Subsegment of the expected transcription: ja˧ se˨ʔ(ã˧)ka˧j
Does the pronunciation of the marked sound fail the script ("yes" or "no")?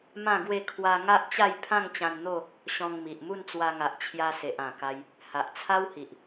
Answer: yes